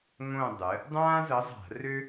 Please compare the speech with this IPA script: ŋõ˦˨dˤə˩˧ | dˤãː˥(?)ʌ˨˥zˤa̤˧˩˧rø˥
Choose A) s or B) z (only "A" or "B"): B